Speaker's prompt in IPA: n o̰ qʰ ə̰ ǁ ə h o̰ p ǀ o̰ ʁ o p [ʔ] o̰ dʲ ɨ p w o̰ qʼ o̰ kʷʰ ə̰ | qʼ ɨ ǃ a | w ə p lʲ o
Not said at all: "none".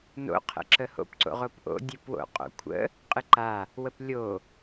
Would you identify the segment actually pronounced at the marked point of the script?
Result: ʔ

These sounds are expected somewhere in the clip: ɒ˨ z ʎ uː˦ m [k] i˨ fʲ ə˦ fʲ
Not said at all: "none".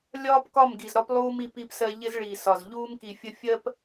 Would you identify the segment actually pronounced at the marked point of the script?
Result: k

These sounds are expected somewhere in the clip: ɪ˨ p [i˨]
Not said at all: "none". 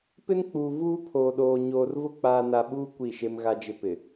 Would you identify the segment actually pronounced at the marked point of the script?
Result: ɪ˨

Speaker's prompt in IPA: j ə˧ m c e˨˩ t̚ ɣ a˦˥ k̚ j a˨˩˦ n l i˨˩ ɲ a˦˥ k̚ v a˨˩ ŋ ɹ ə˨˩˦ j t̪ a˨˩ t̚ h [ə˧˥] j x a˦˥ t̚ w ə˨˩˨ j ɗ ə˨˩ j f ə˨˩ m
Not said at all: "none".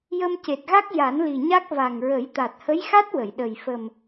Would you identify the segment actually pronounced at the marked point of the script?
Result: ə˧˥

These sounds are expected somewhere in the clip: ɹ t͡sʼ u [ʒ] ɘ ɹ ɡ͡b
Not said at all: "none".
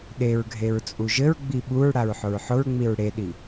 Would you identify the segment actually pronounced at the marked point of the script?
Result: ʒ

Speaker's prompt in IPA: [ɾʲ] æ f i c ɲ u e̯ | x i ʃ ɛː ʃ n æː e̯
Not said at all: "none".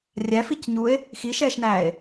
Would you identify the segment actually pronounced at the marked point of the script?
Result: rʲ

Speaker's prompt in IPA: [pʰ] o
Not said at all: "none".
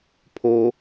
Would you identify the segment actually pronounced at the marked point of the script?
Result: pʰ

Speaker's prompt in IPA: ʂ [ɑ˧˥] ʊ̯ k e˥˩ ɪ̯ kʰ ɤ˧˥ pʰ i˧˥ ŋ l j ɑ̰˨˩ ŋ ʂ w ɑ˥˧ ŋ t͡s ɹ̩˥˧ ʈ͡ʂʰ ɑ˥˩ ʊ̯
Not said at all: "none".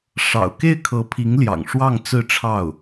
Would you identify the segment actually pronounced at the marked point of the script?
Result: ɑ̰˨˩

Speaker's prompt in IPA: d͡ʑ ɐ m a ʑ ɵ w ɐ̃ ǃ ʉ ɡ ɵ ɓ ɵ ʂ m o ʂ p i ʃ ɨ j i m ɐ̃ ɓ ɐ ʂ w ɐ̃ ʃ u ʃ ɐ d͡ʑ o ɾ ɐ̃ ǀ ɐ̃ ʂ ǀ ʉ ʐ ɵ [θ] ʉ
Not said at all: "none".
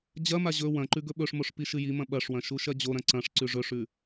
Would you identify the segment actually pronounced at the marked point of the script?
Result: ʂ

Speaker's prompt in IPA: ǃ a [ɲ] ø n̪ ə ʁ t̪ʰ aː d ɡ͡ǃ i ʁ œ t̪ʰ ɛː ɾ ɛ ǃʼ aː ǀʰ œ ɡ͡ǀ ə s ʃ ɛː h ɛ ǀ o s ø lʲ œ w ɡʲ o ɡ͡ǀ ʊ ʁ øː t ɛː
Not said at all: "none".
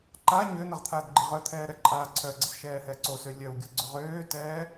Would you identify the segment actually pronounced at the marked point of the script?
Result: ɲ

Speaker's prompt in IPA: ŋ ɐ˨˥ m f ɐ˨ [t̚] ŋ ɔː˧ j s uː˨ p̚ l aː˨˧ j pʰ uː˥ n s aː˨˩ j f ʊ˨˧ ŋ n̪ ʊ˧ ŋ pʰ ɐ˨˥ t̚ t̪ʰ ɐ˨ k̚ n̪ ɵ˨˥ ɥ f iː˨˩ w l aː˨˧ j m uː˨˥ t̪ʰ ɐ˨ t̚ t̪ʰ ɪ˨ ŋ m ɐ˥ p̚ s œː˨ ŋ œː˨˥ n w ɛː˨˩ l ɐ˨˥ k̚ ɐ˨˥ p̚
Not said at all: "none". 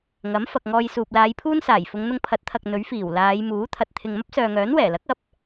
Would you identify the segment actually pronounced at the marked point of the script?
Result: k̚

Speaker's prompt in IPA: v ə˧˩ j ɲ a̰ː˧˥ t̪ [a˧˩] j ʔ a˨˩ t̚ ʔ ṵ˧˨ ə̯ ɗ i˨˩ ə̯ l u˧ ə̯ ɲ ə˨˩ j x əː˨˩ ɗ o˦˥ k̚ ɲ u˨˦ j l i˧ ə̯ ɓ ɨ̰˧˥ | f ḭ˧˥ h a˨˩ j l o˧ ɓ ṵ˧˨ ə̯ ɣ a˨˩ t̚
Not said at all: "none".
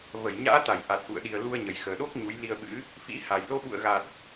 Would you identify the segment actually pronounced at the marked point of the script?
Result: a˧˩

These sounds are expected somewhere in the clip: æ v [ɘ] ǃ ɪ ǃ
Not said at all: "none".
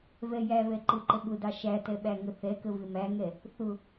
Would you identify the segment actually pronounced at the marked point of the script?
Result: ɛ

